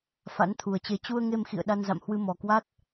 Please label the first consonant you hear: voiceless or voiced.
voiceless